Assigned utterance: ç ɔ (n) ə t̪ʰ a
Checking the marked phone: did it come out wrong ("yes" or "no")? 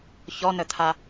no